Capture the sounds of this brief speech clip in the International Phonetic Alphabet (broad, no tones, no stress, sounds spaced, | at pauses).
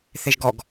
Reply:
θ e ʒ ɡ ɔ ɡ